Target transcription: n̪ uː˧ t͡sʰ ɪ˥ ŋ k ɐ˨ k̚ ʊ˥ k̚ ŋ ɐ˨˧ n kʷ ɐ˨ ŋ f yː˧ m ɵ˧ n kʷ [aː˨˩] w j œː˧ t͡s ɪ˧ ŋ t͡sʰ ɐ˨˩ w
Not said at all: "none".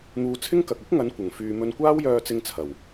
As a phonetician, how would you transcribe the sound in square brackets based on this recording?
aː˥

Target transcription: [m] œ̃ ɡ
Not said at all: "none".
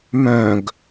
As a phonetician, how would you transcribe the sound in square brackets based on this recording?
m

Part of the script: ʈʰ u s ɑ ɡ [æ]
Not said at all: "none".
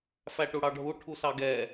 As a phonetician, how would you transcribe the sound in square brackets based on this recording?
ɛ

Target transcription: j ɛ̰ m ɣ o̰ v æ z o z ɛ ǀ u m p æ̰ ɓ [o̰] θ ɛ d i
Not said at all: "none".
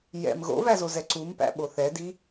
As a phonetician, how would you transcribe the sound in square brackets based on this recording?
o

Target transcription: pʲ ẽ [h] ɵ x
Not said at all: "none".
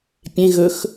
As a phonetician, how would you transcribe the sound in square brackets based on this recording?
ɣ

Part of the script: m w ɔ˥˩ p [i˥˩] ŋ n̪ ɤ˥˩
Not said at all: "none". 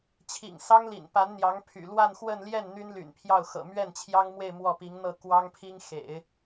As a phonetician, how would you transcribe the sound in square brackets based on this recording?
i˧˥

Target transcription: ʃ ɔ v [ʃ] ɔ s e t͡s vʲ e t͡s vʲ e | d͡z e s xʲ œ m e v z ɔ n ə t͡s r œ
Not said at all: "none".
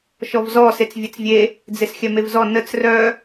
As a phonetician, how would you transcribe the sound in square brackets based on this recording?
z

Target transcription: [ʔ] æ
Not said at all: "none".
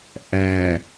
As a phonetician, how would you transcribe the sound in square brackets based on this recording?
ʔ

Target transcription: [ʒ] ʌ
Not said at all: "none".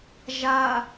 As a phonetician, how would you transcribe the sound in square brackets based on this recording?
ʒ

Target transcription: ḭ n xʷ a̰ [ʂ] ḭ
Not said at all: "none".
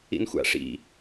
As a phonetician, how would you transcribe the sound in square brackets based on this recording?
ʂ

